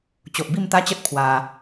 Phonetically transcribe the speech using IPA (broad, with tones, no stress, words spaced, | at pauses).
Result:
t͡ɕo˨ʔbi˥˧mt̪a˦t͡ɕə˦t̚ pʰwa˧